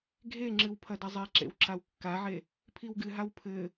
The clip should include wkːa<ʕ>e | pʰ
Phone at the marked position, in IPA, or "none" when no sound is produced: ʕ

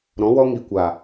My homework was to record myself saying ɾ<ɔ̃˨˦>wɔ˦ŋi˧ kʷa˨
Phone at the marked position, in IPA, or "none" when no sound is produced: ɔ̃˨˦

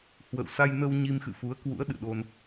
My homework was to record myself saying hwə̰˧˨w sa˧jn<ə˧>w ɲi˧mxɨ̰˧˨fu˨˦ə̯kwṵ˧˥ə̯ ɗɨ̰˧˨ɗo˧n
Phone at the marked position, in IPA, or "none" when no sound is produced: ə˧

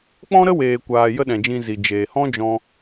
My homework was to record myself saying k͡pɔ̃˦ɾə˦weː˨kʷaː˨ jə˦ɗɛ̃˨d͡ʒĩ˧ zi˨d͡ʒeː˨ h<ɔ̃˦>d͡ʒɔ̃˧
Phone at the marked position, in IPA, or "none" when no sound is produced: ɔ̃˦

